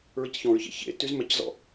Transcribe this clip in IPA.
ɹ i c ç ɔ̃ ɹ ç ḛ ç ḛ t y z m ɛ c z ɔ̰

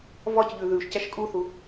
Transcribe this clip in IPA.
v ɒ c ʎ ʉ ð ʉ ʃ c æ ʃ kʼ u θ u

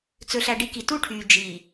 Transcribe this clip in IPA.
t͡s ɵ˨ ɬ æ˨ ɖ i˨˦ k i˨ t u˦ ʈʰ yː˨ d͡ʒ iː˨

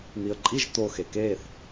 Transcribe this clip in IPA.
n̪ i ə̯ ǃʼ i ʒ t̪ o x e k eː θ

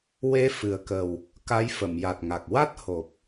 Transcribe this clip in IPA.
w e˧˥ f ɨ˨˩ ə̯ k ə˨˩ w | k a˧˥ j f ə˨˩˨ m j a˨˩ t̚ ŋ a˨˩ k̚ w a˦˥ t̚ h o˨˩ p̚

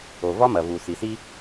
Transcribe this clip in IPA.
o˨ v ɒ˦ m ɐ˨ v u˨ s i˨ s i˦

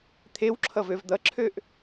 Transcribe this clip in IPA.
t̪ʰ e w ǁʰ ʌ v ø v d̪ ʌ ǁʰ ø ʔ

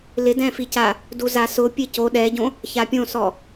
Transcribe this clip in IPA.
l ɪ d ɛ̃ f i c a | d u z a s ʊ pʲ e c o ɗ ɛ ɟ õ | ç a pʲ õ s ɔ

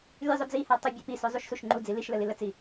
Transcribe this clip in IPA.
lʲ ə zˤ ʏ d͡z i h a tˤ ə bʲ ə p i s ʏ zˤ u ʃ s u ʃ ŋ͡ǃ u d͡z i l i ʃ l ə l i l ə t͡s i

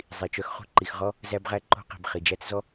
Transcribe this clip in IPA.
zˤ i˨ t͡ʃ œ˦ x χ ṳ˦ ǃ i˨ x ʁ ɔ˦ | z æ˦ b ʁ æ˦ ǃ o̤˦ q i̤˨ b χ i˨ d͡ʒ æ˦ t͡s z ɔ˦

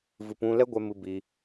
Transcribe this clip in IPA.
v ɨ˨ p ũ˧ l ɛ˦ ɡʷ ɛ˧ m ɨ˧ b i˧

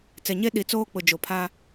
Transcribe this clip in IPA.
t͡s ɛ˨ ɲ e˦ ɗ i˨ t͡s oː˦ k͡p ʊ˨ d͡ʒ o˨ pʰ aː˦

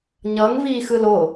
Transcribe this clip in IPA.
ɲ ʌ ŋ v iː x ɯ l o

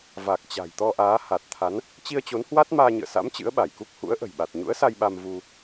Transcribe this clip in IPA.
v a˨˩ k̚ t͡ɕ a̤˨˩ j t̪ ɔ˧ ʔ aː˨˦ h a˨˩ t̚ t̪ʰ a˨˦ n | t͡ɕ i˧ ə̯ t͡ɕ o˨˦ n h w a˦˥ t̚ m aː˧ ɲ ɨ̰˧˨ ə̯ s a̰˧˥ m t͡ɕ ɨ̰˧˥ ə̯ ɓ a˧˩ j k u˦˥ k̚ h ṵ˧˥ ə̯ ʔ ə̤˨˩ j ɓ a˨˩ t̚ ɲ ṵ˧˥ ə̯ s a˧ j ɓ a˧ m v u˧

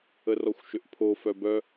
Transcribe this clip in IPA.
ə r ɔ xʷ ʃ ʏ ʔ pʰ o f œ b œ

